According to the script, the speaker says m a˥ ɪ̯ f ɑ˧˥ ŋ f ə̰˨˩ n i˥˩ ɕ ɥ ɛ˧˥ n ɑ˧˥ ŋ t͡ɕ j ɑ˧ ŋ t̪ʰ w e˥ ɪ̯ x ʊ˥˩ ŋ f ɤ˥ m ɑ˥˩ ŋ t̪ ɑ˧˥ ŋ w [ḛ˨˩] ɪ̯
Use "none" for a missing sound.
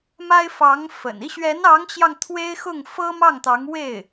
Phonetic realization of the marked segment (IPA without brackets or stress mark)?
e˥˩